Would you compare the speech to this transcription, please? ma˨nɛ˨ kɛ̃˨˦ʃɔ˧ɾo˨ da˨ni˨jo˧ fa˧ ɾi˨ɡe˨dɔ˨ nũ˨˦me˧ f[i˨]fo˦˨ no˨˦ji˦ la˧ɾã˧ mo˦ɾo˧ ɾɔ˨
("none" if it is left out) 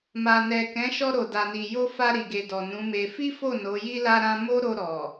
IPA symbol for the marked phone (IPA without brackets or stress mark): i˦